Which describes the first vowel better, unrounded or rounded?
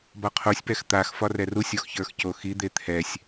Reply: rounded